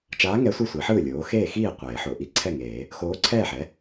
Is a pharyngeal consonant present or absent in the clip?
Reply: present